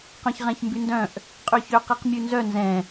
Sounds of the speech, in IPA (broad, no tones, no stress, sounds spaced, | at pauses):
q œ̃ ç ʁ ɛ̃ ç m b y n d œ̃ ʔ | qʼ y ç ø q i q mʲ ʉ n z œ n z ɛ̃